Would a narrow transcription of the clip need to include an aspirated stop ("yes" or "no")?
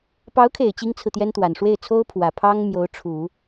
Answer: yes